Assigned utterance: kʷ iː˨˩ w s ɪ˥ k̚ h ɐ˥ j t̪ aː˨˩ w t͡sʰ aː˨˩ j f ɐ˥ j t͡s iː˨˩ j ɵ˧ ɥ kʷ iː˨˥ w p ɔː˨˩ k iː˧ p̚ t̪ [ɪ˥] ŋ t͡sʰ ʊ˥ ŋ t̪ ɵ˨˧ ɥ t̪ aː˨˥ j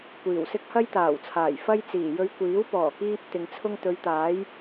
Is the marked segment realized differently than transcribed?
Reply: yes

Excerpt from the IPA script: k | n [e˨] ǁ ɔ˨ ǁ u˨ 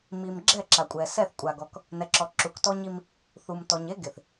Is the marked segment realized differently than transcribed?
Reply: yes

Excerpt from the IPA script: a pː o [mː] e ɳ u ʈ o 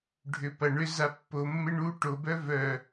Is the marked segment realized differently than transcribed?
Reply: no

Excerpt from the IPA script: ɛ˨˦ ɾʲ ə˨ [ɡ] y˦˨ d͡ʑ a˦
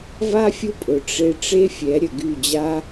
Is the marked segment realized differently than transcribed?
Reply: no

